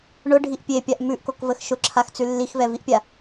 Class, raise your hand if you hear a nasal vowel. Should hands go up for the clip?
no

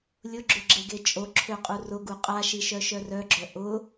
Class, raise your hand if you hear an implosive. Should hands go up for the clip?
no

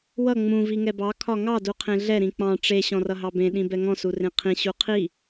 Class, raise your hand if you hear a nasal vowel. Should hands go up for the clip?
yes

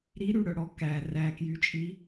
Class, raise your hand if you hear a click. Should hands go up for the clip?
no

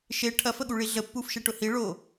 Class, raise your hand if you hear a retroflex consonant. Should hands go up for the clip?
yes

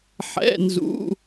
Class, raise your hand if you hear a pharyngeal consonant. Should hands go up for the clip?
yes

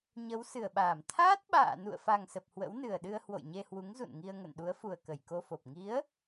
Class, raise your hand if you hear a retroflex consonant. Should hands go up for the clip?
no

